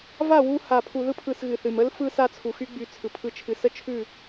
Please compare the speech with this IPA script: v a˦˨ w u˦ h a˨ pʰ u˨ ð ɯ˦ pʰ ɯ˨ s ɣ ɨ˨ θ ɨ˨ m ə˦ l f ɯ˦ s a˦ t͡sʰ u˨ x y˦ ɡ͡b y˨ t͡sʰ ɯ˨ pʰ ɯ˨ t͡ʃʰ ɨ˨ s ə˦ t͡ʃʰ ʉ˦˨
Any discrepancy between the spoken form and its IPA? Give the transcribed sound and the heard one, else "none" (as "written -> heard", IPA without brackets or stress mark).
none